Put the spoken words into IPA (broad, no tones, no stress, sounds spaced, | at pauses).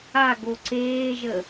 a ɡ o ǀ eː ʒ ə